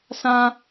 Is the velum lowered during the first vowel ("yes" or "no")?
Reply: yes